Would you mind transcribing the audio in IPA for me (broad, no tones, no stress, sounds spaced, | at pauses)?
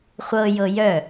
χʷ ɤ j ɤ j œ